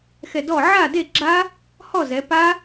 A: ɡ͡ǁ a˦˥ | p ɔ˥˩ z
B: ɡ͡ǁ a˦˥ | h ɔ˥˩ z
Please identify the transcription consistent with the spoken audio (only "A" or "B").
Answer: B